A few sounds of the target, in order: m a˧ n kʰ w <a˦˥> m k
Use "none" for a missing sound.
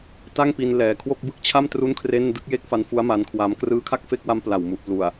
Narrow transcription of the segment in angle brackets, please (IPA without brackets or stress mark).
a˧